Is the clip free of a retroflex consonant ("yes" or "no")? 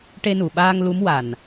no